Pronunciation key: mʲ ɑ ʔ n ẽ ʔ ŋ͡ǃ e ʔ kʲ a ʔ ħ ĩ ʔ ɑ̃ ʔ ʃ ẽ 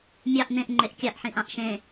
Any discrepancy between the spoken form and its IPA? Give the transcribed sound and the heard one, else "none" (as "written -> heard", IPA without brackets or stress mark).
none